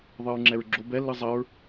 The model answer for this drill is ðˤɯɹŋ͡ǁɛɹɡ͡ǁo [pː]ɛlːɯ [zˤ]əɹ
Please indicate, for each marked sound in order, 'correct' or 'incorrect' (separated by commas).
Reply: incorrect, correct